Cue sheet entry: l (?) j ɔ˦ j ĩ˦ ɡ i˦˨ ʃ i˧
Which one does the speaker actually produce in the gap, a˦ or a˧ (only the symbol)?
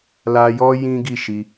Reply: a˧